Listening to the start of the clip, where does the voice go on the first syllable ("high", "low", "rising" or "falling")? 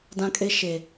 high